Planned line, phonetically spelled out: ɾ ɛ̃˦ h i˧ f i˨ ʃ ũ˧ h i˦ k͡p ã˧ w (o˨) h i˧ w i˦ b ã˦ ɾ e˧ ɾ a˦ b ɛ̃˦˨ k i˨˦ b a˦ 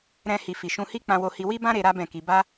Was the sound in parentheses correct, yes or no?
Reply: no